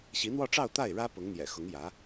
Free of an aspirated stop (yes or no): yes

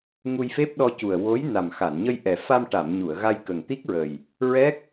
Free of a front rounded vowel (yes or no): yes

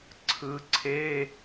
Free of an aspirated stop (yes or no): no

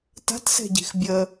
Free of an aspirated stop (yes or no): yes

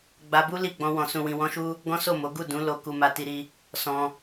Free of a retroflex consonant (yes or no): yes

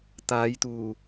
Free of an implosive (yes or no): yes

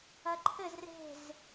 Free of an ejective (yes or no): yes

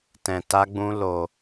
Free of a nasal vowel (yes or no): no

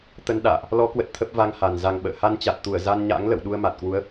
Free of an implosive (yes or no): no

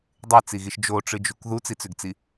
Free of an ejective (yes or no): yes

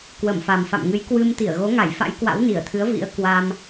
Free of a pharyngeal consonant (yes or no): yes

